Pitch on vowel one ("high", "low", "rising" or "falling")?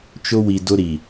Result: high